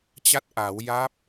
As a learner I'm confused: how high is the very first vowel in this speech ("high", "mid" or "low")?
low